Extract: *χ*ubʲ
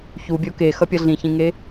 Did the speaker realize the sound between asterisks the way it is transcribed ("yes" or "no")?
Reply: no